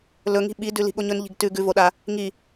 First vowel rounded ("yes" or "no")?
yes